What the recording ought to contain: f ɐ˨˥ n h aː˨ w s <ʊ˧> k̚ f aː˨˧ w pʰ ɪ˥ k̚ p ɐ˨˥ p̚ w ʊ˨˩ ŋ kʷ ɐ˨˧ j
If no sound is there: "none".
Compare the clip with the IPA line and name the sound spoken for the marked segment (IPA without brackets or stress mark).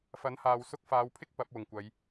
ʊ˧